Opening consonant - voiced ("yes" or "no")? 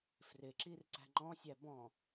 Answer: no